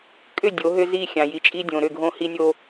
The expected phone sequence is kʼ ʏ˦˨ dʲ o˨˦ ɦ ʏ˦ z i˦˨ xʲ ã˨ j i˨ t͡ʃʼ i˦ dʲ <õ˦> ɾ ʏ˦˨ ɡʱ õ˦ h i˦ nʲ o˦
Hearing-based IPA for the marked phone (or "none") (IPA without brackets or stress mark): õ˨